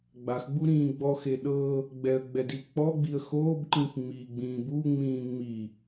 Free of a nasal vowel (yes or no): no